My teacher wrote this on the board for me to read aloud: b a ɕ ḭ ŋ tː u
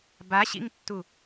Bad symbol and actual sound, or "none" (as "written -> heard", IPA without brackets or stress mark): none